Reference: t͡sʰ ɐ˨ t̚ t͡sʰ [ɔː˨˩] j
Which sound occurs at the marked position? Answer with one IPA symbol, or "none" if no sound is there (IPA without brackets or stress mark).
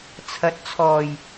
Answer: ɔː˨˩